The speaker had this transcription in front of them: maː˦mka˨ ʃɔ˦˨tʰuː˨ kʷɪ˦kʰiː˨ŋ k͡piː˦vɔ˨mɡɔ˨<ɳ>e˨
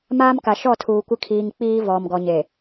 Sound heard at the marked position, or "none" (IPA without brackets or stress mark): ɲ